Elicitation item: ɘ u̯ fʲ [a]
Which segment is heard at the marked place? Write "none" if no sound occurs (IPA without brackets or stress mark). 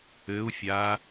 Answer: a